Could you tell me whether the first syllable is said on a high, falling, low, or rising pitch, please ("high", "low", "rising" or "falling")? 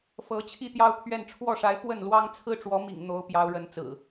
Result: rising